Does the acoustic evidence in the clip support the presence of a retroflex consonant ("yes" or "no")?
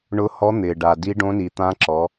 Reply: yes